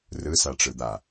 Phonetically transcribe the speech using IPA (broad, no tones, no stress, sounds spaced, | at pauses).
r ɯ s a ʈ͡ʂ ɯ d̪ a